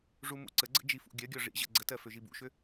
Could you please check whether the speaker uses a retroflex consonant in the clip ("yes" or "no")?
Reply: yes